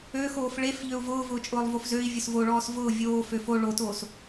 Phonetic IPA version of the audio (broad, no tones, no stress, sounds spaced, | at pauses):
ø x oː f ɭ e f ʎ ø u̯ v ʊː v ʊː t͡ʃʼ ʊː lˠ v o f z ø i̯ vʲ ʊ s v o ɭ ɔː s v ʊː vʲ oː f ø f o ɭ o t oː s